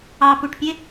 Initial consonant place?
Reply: labial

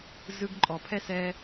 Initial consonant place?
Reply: alveolar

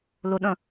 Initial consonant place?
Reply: alveolar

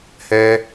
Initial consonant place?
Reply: glottal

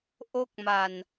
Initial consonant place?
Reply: glottal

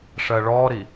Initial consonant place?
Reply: retroflex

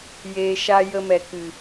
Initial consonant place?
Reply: palatal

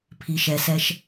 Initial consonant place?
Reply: labial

